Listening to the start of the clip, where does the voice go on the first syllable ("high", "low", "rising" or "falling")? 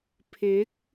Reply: rising